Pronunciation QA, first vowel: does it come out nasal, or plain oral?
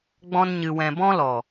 nasal